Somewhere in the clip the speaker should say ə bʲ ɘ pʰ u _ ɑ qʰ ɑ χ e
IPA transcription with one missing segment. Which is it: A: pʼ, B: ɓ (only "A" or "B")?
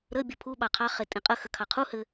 B